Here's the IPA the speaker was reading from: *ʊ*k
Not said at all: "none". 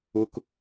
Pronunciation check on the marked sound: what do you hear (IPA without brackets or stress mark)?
ʊ